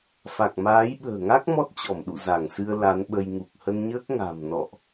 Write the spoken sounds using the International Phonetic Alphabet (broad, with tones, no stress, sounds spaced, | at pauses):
f a˨˩ k̚ m aː˨˦ j ɓ ə̤ː˨˩ ŋ a˦˥ k̚ m ɔ˦˥ t̚ t͡ɕ ɔ˧˩ m ɗ ṵ˧˨ z a˧˩ ŋ s ɨ˧ ə̯ l a˨˦ n ɓ ə˧ j ŋ u˨˩ k̚ h ə˧ n ɲ əː˦˥ k̚ ŋ a̤˨˩ m n ɔ̰˧˨ ʔ